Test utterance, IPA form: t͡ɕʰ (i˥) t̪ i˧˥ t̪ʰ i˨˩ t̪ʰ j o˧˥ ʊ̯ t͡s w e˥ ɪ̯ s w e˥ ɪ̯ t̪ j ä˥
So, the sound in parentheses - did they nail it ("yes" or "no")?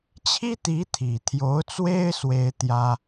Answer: yes